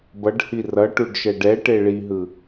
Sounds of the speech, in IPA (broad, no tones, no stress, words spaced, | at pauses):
bʌɖhi rʌʈuɖʃɛɖ ɛʈe ɭiɦɯ